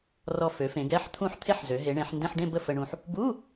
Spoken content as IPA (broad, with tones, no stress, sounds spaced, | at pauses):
r ɔ˧ f ø˩˧ f ẽ˩˧ ɡ ɛ˧˥˧ ħ t̪ʰ ũ˥˧ ħ t̪ʰ e˥˧ ħ z ø˩˧ ɦ e˩˧ ɳ ẽ˩˧ ħ n d ẽ˧˥˧ ħ ɖ ẽ˥˧ b ə˥˧ f ə˧ ɳ ũ˧ ħ | b u˧˥˧